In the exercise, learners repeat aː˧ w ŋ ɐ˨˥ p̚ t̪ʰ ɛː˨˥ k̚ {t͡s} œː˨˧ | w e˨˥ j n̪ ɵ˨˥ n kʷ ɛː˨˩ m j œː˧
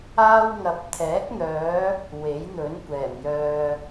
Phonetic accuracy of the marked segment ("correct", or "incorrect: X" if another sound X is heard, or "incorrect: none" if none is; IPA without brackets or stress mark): incorrect: n̪